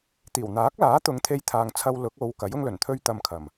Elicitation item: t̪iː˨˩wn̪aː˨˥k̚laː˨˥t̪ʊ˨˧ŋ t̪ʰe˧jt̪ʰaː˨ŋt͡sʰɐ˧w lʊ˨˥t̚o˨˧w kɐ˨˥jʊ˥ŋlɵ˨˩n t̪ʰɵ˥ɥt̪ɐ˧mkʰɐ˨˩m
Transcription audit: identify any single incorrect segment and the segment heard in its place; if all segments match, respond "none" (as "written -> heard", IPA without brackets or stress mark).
t̚ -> k̚